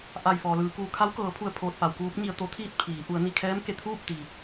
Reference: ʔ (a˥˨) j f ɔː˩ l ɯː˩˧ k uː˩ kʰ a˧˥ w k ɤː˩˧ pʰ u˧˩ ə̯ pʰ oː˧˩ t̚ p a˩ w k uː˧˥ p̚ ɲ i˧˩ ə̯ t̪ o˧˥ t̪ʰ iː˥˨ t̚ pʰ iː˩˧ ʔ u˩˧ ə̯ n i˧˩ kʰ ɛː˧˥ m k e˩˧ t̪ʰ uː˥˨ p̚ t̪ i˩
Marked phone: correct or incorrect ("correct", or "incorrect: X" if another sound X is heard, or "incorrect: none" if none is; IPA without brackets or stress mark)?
incorrect: a˧˩